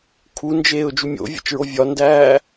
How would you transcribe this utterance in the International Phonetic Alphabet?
kʰ u n d͡ʒ eː ʊ̯ d͡ʒ u mʲ o̰ vʲ ḛ t͡ʃ ɹ o vʲ ɒ n d æː

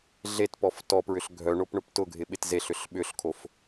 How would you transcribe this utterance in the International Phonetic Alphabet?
ɮ e t p ɔ f t ɔ p ɹ ʏ ɬ ɡʱ œ ɳ o p ɳ ʊ p t ʊ ɡʱ ɪ ɓ ɪ t z e ɬ ʏ ɬ ɓ ʏ ɬ kʰ o f

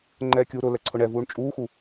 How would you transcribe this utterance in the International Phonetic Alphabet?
ŋ͡ǃ ɛː kʲ uː ɾ ʊ l ɛ ǀʰ ʊ ɳ ɛ v uː ɳ t͡ʃʼ uː x u

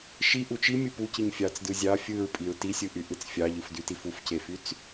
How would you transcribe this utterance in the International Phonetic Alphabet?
ʃ i ʔ u t͡ʃ i mʲ ɯ p u c i ɲ fʲ ɑ t͡s d ɯ zʲ ɑ fʲ ɯ ɹ pʼ i ɹ t i sʲ ɯ ʔ y ʔ ɯ t͡s fʲ ɑ ʎ ɯ f d y t i f u f c e f y t͡s

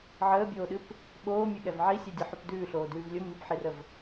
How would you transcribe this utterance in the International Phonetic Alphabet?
ʕ əː bʲ oː ɗ ɨ p | ɓ oː mʲ ɨ ɠ ɛ v ʕ i sʲ ɛ dʲ ɨ ħ ʉ p d ʉː ɬ oː d ʉː v lʲ ʊ m i p ħ i r ə v

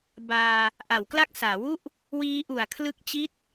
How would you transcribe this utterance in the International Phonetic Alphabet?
b aː˧ | ʔ a˩˦ w k l a˦˥ k̚ s aː˩˦ w u˥˩ ʔ | w iː˦˥ ʔ u˨˩ a̯ kʰ l ɯ˦˥ k̚ t͡ɕ i˥˩ t̚

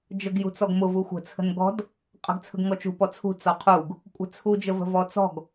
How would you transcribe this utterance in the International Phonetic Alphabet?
d͡ʒ ə ɡ j ṳ t͡s ɔ ɡ m ʊ v u xʷ ə̤ t͡sʰ ə̤ n ɡ ɔ̤ d | qʼ ə̤ ɡ t͡sʰ ə̤ ɡ ŋ ɔ t͡ʃ ṳ p ɔ t͡sʰ ṳ t͡s ɔ qʰ u ɡ | kʷʼ ə̤ t͡sʰ u d͡ʒ ə v ə̤ v ɔ t͡s ɔ̤ ɡ

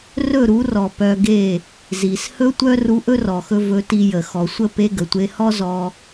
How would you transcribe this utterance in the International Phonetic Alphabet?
r ɵ˦˨ ɾ u˨˦ r ɔ˨ p œ˧ ɡ e˦˨ | z i˨ s h ɵ˦ tʷ œ˦ r u˧ ʔ ɵ˦ r ɔ˨ x ɵ˧ v ɵ˧ t i˧ j ə˨ x ɔ˨ sʷ ə˦˨ p e˧ ɡ ə˨ tʷ e˧ h ɔ˦ z ɔ˧

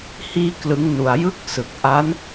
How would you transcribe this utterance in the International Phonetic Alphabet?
h iː˥˩ k l ɯ˦˥ ŋ n u˧ a̯ j ɯ˦˥ k̚ s ɯ˨˩ k̚ ʔ a˦˥ n

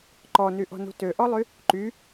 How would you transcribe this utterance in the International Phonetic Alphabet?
ǃ ɔ n y ʔ ɔ̤ n ṳ t ø ʔ ɔ lˠ y | ǃ y

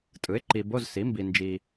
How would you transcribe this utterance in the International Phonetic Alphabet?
tʼ ɯ˩˥ ɪ̯ ǃ i˨ b o˧˥˧ z s i˩˥ m b i˨ n d͡ʒ i˨

